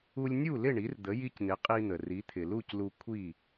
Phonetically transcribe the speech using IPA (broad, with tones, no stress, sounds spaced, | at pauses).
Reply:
u˧ lʲ nʲ u˥˩ l ɪ˥˩ ɳ i˩˥ r d̪ ə˩˥ j i˧ c n̪ ɪ˩˥ qʼ i˧ n̪ ə˩ r i˩˥ t̪ʰ ɪ˩ l u˥˩ c l u˧ kʷʰ i˥˩